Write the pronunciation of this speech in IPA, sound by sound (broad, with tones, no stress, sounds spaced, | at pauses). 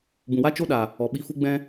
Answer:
b ũ˨ w a˦ t͡ʃ o˦ ɗ a˨ | ɔ˨ ɓ i˧ f u˦ ɡ͡b ɛ̃˦